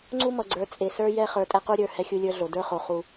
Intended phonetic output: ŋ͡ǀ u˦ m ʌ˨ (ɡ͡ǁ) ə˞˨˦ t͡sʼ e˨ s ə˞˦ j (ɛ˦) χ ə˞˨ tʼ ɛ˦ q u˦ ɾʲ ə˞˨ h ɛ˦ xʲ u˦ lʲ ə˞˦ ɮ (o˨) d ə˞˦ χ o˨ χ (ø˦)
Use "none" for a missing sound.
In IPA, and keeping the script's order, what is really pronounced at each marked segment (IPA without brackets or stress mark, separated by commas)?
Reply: ɡ͡ǀ, ɛ˦, o˨, u˦